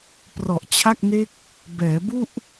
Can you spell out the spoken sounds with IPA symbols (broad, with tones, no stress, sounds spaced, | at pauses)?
p r ɔ˨˩ ʔ t͡ɕʰ a˥˩ k̚ n e˦˥ k̚ | b ɛː˩˦ b u˥˩ ʔ